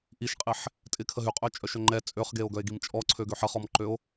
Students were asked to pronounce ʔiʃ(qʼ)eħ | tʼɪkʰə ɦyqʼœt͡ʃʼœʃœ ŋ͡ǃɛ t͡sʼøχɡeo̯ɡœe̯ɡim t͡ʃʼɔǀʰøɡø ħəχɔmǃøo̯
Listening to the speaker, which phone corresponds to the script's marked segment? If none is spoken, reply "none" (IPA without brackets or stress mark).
qʼ